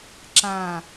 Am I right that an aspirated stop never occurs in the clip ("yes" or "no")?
yes